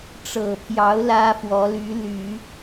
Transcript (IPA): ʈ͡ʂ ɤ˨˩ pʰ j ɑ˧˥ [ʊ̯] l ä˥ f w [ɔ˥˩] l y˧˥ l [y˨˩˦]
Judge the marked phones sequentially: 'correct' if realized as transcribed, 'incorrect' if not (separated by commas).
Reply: correct, incorrect, correct